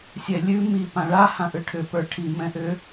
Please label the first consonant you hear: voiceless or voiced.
voiceless